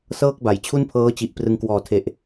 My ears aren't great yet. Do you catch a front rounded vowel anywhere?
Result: no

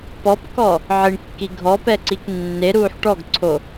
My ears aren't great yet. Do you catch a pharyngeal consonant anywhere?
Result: yes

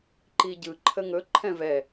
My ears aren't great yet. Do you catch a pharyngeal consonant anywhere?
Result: no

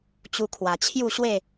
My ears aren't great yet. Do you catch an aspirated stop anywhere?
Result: yes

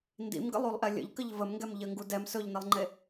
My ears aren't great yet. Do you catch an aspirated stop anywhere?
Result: no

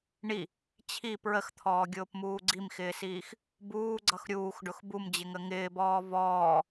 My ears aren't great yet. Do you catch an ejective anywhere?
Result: no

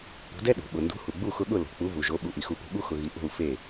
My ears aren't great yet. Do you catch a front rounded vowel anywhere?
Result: no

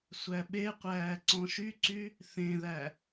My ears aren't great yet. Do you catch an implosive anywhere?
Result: yes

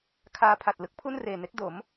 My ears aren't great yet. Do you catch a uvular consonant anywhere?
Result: no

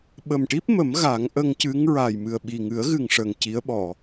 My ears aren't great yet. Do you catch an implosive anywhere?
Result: yes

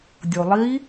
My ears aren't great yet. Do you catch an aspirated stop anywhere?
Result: no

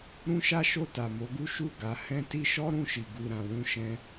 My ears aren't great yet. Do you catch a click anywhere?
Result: no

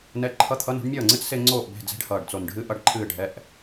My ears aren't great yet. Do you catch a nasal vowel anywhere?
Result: no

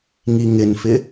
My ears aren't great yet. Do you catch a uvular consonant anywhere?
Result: no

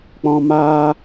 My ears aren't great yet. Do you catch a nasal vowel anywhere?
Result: yes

